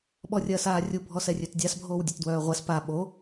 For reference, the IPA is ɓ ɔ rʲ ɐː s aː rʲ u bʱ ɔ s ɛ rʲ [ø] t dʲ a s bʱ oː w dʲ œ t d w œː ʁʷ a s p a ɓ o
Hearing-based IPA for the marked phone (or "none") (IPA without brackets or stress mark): ø